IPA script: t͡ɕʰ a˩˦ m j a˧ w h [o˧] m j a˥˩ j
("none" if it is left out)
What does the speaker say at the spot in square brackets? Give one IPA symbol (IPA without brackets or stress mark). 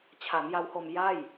o˧